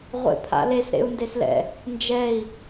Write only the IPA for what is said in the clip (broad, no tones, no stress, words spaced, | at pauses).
ʁʷḛpʰa̰les ɾḛu̯ndeslɛ̰ | nd͡ʒɛi̯